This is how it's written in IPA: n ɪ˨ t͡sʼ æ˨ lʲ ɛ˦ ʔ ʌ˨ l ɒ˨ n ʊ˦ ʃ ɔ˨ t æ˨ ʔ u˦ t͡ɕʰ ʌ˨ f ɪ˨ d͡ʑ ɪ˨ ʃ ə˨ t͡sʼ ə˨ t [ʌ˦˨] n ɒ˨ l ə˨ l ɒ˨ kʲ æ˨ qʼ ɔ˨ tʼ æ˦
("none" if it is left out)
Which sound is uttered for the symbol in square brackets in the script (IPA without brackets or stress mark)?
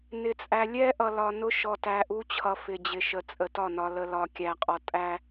ɒ˦˨